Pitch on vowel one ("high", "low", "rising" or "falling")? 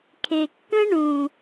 low